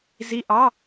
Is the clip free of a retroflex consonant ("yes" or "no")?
yes